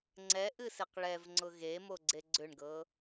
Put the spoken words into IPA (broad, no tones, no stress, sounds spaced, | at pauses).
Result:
ŋ͡ǀ ɛ ʔ ɨ s e q ɭ ɛ v ŋ͡ǀ ʊ ɣ e m o ɡ͡ǀ e ɡ͡ǀ ʏ ɳ ɡ ɤ